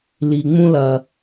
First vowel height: high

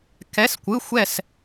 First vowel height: mid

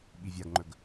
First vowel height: high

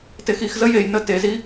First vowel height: mid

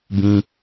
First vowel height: high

